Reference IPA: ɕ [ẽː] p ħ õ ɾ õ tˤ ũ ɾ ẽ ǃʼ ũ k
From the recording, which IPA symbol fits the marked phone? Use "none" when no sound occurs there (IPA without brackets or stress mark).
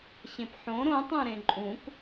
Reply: ẽ